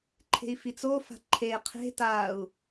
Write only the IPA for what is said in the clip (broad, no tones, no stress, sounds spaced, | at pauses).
ǃʰ e̤ i̯ f i t͡s o f a̤ ǃʰ e qʰ e̤ t a u̯